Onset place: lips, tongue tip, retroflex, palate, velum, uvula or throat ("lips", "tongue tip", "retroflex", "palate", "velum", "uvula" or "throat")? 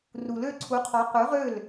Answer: tongue tip